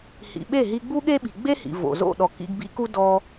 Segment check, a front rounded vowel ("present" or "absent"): absent